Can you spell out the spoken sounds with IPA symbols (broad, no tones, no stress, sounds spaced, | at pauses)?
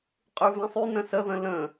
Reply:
qʼ y v ẽ sˤ y n ə̃ s ə ð ə̃ l ə̃